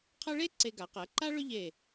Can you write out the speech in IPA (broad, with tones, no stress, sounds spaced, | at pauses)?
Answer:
qʰ ɐ˥ ɭ e˥ ǀ e˧ ɡ a˩˧ q ɜ˩˧ ǃ a˥ ɭ ʏ˥ ʎ e˧˩